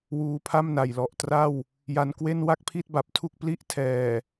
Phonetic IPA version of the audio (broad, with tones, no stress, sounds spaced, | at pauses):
w uː˧ pʰ a˥˩ m n a˨˩ j l ɔ˨˩ ʔ t r a˥˩ w | j a˧ n k w e˥˩ n w a˥˩ k̚ pʰ i˥˩ t̚ b a˨˩ p̚ tʰ u˥˩ k̚ p l i˥˩ ʔ tʰ ɛː˨˩